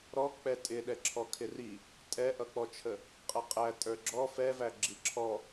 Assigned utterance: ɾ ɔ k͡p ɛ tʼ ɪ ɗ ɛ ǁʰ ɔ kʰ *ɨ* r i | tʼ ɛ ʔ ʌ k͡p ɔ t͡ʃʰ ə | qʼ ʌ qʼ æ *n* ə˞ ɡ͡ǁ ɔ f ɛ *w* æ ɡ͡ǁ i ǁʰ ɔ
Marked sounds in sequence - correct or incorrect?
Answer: incorrect: ɪ, incorrect: tʼ, incorrect: v

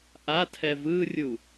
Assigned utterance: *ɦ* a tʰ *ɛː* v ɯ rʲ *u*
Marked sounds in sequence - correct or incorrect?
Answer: incorrect: ʔ, incorrect: ɛ, correct

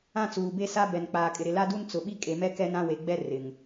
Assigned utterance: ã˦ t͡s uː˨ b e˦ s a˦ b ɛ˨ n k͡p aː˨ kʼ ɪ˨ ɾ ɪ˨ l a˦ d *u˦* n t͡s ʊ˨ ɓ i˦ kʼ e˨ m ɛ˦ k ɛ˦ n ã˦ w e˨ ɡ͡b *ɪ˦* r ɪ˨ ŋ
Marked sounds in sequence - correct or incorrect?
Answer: correct, incorrect: ɛ˦

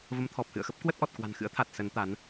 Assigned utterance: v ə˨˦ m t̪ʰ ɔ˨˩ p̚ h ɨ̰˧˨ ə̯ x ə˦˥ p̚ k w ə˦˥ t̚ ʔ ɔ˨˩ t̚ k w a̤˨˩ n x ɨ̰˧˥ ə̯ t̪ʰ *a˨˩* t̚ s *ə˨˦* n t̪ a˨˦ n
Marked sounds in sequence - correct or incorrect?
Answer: correct, correct

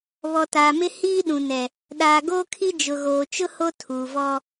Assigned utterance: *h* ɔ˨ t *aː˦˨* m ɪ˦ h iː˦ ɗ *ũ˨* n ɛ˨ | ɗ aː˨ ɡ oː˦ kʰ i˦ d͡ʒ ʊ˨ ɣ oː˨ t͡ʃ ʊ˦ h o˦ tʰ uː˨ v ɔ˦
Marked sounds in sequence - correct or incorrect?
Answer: incorrect: β, incorrect: aː˨, correct

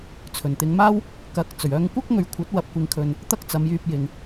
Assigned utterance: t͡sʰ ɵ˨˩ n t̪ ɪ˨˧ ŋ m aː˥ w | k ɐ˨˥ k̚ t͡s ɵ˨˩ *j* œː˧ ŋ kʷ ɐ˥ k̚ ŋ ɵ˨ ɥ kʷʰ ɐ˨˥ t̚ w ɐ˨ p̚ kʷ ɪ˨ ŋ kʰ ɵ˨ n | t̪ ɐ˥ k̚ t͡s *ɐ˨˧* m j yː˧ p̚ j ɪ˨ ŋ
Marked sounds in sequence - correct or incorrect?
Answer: incorrect: ɥ, correct

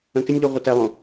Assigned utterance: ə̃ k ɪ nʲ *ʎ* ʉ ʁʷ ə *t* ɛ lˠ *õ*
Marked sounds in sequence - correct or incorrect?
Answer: correct, correct, correct

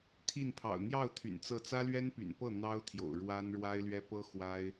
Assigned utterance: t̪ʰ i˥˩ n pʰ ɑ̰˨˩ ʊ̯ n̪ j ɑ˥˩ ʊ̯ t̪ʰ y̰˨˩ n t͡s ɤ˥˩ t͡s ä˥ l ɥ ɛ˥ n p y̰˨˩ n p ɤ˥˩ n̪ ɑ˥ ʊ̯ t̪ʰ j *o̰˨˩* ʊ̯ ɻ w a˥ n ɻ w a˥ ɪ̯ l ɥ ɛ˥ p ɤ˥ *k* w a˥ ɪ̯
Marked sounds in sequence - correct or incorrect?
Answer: correct, incorrect: x

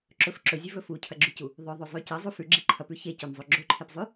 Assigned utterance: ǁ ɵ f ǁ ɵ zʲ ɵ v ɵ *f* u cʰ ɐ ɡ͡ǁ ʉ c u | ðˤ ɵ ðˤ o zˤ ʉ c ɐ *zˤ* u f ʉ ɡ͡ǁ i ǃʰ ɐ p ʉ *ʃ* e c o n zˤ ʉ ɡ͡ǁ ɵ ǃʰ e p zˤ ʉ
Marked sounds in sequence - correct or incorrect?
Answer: correct, correct, incorrect: ç

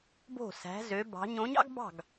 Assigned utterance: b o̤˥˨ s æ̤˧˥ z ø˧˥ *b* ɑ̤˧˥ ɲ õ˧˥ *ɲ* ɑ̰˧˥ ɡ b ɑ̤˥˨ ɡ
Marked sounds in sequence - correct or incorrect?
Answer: correct, correct

